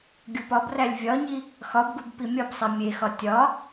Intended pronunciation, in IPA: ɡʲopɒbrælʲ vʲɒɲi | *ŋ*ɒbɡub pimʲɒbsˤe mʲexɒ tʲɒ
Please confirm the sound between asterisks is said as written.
no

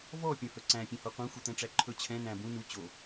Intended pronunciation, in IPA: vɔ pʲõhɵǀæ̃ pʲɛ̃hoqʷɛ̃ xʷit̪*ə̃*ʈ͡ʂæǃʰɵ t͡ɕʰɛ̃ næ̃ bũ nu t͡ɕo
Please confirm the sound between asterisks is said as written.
no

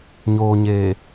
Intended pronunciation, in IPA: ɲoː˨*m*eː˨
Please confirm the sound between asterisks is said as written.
no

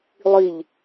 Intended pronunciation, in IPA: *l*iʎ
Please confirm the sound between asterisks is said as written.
no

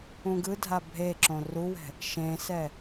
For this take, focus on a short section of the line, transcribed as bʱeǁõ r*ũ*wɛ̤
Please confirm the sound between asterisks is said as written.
no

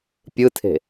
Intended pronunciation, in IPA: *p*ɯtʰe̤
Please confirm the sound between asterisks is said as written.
no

